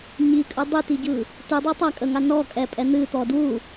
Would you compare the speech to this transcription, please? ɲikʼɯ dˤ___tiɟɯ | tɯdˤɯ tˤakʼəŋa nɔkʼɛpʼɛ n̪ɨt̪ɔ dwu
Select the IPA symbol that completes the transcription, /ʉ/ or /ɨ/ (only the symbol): ɨ